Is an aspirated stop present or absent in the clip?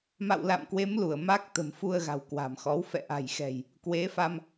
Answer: absent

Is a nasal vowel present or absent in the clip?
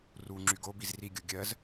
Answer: absent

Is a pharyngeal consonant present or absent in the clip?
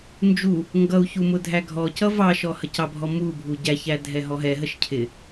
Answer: absent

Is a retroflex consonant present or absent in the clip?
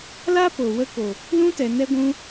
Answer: absent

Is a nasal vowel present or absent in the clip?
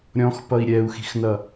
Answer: present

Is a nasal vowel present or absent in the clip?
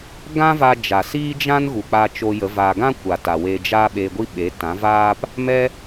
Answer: present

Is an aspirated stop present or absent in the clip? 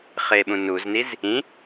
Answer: absent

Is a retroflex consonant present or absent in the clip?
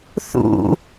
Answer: absent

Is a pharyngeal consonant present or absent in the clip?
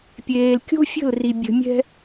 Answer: absent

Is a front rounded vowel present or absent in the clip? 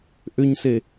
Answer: present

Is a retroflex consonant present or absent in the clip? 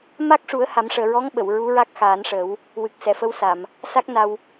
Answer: present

